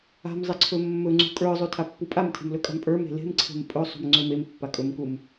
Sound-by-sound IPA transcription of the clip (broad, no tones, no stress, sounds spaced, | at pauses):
a̤ m zˤ e ǀʰ ɵ mː ɵ ŋ͡ǀ ṳ kʼ ə˞ zˤ ʉ tʰ a pː u pʼ a m tʰ e̤ m l ɵ kʼ a̤ m pʼ ə˞ m e̤ l e̤ m ǀʰ e̤ m pʼ ɵ sˤ ṳ m ŋ͡ǀ ɵ m e m pː a kʼ ɵ m k u m